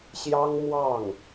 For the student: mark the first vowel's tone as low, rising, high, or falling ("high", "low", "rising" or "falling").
high